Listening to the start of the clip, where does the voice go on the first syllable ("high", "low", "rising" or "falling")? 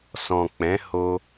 low